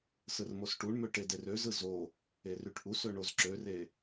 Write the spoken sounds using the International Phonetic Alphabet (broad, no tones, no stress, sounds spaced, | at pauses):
s ɯ r m o s ʈ u ɳ m ø ʈ e d e r ø z ɯ z o | e r y ʈ ʔ u s ø ɳ o z ǁ ø r e